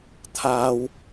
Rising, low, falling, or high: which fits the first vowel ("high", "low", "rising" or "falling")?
high